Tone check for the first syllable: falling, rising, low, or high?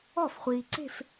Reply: falling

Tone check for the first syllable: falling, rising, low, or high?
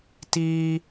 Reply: high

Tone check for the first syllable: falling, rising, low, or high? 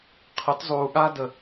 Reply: rising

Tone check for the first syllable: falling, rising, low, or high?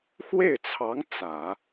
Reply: falling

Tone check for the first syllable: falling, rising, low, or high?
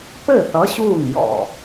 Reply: falling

